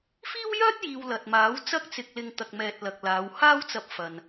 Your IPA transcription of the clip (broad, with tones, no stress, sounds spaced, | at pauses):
f iː˥ w j œː˥ t̚ j iː˨ w l ɐ˨ t̚ m aː˨˥ w t͡s ɐ˥ k̚ t͡s ɪ˧ k̚ l ɪ˧ ŋ t̪ ɐ˨ k̚ m ɛː˨ t̚ l ɐ˨ k̚ l aː˨˧ w h aː˥ w t͡s ɐ˧ p̚ f ɐ˨ n